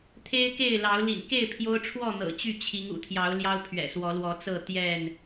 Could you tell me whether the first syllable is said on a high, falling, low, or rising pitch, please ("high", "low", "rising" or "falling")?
high